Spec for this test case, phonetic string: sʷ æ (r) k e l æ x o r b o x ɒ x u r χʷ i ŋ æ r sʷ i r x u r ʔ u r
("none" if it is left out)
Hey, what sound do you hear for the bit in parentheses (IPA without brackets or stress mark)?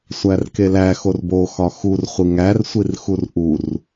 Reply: r